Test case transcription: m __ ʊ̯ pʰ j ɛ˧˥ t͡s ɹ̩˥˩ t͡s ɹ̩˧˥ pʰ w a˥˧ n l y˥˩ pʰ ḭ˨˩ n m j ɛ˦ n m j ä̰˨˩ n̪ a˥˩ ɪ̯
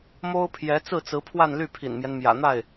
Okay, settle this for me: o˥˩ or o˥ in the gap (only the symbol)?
o˥